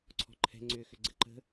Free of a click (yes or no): no